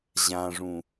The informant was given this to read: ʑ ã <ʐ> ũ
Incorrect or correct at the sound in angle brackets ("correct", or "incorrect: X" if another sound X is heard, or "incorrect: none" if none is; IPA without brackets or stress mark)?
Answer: correct